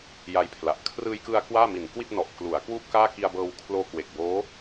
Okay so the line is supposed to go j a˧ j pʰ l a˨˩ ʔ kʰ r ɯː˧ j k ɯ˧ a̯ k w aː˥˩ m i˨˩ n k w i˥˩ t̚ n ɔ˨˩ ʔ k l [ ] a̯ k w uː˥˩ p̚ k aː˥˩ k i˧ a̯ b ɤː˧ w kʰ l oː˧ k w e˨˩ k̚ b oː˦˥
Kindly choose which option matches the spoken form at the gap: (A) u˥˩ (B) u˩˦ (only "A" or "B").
B